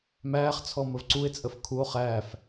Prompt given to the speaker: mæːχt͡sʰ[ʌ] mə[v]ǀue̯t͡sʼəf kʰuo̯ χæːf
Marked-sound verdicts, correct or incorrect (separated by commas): incorrect, correct